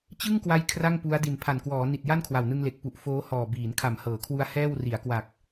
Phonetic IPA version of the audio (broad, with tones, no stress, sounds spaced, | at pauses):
t͡ɕ ɯ˥˩ ŋ k w a˦˥ j kʰ r a˥˩ ŋ p u˦˥ a̯ d i˨˩ n pʰ a˨˩ n k w ɔː˩˦ n i˨˩ t̚ j a˥˩ n kʰ w a˨˩ w n ɯ˧ ŋ l e˨˩ k̚ p u˨˩ ʔ f oː˦˥ h ɔː˨˩ b iː˩˦ n kʰ a˨˩ m h ɤː˩˦ kʰ w u˧ a̯ h ɛː˥˩ w r i˩˦ a̯ k w a˨˩ k̚